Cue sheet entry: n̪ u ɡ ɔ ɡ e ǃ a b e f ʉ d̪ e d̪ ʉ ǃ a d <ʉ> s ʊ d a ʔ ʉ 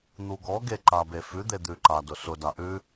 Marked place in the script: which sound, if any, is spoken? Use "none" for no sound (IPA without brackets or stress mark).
ʊ